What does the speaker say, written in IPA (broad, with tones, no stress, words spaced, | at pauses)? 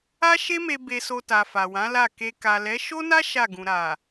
a˦ʃe˦me˧ be˧so˧ta˨ fa˨wã˨˦la˦˨ ke˧ ka˨lɛ˨˦ ʃo˦na˦ ʃa˦˨ɡũ˨ ɾa˨